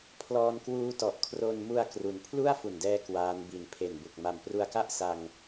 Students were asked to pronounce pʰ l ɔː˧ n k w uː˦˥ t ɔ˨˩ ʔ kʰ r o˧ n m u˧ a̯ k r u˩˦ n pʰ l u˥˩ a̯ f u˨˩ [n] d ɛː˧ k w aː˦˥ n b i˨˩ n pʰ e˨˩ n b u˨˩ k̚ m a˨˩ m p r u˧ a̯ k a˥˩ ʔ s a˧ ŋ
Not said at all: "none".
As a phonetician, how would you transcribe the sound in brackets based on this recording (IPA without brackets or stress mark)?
n